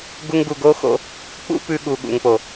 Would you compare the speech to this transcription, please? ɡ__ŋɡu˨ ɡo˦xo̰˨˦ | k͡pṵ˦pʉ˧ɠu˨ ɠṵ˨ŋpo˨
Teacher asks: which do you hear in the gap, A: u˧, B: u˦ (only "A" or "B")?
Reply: A